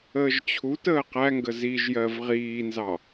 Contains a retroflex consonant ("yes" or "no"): no